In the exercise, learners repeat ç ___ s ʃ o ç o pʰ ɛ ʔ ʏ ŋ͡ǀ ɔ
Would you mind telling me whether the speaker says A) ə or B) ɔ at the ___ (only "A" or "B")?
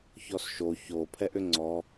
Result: B